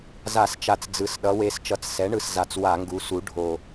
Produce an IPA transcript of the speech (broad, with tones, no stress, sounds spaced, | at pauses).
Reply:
z a˧˩˧ s t͡ʃ a˨˩ t͡s d͡z ɯ˩˧ s ɗ ʌ˩˧ w e˩˥ s t͡ʃ ʌ˩˧ t͡s s ɛ˩˥ ɳ ɯ˨˩ s z a˨˩ t͡s w a˧˩˧ ŋ ɡ u˩˧ s u˩˥ ɖʱ o˨˩